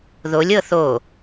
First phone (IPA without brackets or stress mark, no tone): ð